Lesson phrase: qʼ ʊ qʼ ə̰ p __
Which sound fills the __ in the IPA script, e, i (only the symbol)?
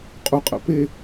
e